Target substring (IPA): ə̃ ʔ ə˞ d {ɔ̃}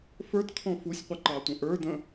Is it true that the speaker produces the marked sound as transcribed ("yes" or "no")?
no